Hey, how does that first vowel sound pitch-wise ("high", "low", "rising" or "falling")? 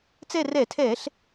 falling